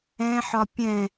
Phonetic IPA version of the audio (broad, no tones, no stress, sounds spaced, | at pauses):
ɛ̃ ħ ɒ pʲ ɛ̃